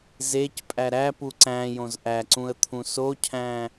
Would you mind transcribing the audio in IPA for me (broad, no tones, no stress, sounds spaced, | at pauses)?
z e c pʼ æ ɾ æ p u ǀ æ̃ j õ z ʔ æ ǀ ũ ə̯ t̪ʰ ũ s o cʰ æ̃